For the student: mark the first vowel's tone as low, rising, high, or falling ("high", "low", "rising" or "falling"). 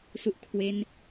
low